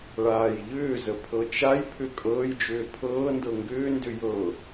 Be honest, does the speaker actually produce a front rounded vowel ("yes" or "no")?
yes